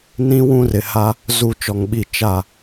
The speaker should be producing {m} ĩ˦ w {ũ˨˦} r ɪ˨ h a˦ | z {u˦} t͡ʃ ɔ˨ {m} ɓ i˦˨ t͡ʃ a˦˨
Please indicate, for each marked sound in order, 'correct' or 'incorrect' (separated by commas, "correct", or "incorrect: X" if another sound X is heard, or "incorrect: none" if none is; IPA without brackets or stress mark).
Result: incorrect: n, incorrect: ũ˦, incorrect: u˦˨, incorrect: ŋ